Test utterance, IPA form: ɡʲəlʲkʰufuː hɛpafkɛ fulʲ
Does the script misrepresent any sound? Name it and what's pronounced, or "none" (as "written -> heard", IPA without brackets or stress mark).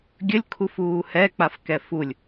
p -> k͡p